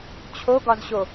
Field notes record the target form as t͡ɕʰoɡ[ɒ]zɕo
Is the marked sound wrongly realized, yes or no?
no